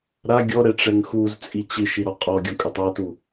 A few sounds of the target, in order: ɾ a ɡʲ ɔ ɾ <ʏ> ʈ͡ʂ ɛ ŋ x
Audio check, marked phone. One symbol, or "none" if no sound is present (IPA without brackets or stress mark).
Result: ɛ